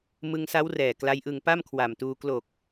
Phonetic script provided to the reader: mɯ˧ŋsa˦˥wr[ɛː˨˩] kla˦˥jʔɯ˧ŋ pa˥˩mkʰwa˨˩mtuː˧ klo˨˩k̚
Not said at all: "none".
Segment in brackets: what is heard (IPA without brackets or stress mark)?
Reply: ɛː˨˩